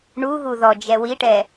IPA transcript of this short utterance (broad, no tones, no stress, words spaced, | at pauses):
ɳuɣu ðɔ d͡ʒɛwiʈɛ